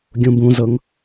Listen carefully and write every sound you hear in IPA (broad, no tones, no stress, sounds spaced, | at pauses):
ɡʲ ũ b ũ z ɤ ŋ